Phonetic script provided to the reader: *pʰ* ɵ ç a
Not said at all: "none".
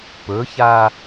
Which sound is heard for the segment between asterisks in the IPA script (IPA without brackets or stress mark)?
p